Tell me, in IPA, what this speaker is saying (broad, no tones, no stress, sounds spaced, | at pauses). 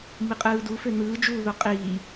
m i qʼ ɯː d u f ø n̪ ɯː d͡ʒ uː ð o qʼ iː